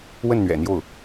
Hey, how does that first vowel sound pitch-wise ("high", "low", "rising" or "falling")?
falling